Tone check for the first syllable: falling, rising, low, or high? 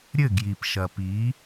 falling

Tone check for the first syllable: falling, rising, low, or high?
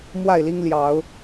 falling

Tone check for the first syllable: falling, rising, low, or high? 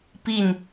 falling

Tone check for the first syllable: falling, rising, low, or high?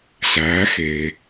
rising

